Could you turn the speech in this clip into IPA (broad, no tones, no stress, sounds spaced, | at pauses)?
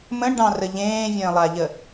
m ə̃ ɖ ɑ̃ r ə ʎ ẽː vʲ ə̃ː lˠ a ʎ ə